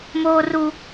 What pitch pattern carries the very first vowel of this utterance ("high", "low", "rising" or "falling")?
high